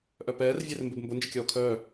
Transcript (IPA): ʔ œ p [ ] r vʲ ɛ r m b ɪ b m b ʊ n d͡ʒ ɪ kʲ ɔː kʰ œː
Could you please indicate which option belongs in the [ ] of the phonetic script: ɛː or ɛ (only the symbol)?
ɛː